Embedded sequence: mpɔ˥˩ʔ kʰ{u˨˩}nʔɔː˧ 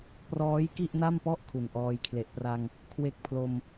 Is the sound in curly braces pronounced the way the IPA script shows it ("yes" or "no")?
yes